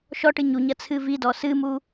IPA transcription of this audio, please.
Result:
ʃ ɔ ʈ ɨ ɲ u ɲ ɐ t͡sʰ ɨ v i d ɔ s ɨ m u

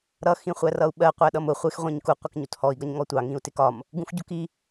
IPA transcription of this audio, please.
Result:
ɾ ʌ x ĩ χʷ æ r ʌ u̯ ɓ ɜ qʷ æ ɗ ʌ m ʊ χʷ ɪ x ʁʷ ĩ ɲ k u qʷ ʌ k ɲ u t h ɔ i̯ ɡ ʌ ɲ ŋ ɔ tʷ ɑ ŋ ĩ u̯ t ɪ k ɒ m | ɡ ũ x ɟ u k i

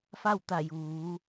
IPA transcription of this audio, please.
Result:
f a˥˨ w t̪ a˧˩ j uː˩˧

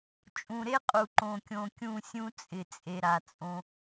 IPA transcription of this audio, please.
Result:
t͡ʃʼ ũ˨ ɾ e˦ qʼ u˨ ǃ õ˨ kʲ õ˨ kʲ ũ˦˨ sʲ ũ˦ t͡sʼ ɪ˨ t͡sʼ e˨ ɾ a˨ t͡sʼ õ˦

